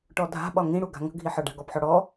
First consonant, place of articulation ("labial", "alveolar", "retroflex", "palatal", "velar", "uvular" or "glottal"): retroflex